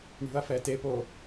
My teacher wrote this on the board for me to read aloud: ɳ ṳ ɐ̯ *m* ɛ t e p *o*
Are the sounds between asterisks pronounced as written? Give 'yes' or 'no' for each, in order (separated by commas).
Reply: no, yes